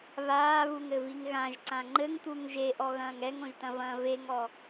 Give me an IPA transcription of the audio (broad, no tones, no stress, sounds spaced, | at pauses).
β aː β u ŋ ɘ v i ŋ ɣ ã ʒ ǀ ã ŋ͡ǃ ɘ ŋ t̪ u ŋ ʒ e ʔ ɔ ɣ ɐ̃ː ŋ ɛ ŋ õ ʒ t ɐ̃ v ɐ̃ː v e ŋ ɔ